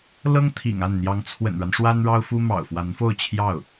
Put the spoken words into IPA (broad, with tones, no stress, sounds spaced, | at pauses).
l ɤ˥ ŋ t̪ʰ ḭ˨˩ ŋ a˥˩ n n̪ j ɑ˧˥ ŋ t͡sʰ w ə̰˨˩ n ɻ a˦ n ʂ w a˥ n ɻ ɑ˥ ʊ̯ f u˥ m ɑ̰˨˩ ʊ̯ f w a˧˥ n f o˥˧ ʊ̯ t͡ɕʰ j ɑ˥˩ ʊ̯